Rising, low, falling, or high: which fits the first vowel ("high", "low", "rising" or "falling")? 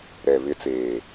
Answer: low